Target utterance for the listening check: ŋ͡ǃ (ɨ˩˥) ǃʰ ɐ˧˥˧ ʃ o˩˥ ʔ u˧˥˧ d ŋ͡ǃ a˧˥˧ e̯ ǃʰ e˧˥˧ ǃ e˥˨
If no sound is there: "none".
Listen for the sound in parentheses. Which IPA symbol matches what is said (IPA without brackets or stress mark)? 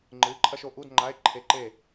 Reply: ɨ˩˥